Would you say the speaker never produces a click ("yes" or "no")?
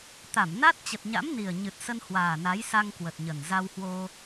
yes